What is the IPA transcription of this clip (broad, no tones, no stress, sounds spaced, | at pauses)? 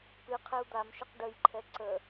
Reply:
p ɨ qʰ ɛ u̯ d̪ a m ʃ ɘ q ɖ ə j ǃʰ ɛ ǀ ə